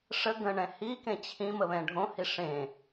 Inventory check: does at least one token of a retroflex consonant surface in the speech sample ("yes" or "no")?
yes